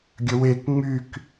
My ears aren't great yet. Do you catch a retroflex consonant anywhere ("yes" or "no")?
no